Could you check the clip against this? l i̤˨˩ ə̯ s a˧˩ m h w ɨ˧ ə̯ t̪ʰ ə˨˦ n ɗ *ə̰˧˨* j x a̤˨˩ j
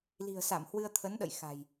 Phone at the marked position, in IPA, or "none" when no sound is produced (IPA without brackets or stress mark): ə̰˧˨